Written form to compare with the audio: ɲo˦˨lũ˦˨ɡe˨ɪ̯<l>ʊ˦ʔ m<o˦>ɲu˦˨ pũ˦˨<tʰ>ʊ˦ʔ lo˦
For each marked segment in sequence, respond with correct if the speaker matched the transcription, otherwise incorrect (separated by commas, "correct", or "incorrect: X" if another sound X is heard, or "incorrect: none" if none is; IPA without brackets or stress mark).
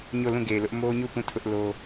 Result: correct, correct, correct